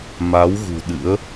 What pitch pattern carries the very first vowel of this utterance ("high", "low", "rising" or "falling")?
rising